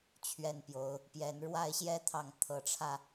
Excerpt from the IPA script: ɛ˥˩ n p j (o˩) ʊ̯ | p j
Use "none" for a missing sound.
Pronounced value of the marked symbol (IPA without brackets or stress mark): o˧˥